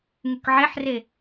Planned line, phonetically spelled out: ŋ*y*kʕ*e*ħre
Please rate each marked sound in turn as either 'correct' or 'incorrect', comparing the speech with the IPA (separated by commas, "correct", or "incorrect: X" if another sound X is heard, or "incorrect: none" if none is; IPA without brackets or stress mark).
correct, correct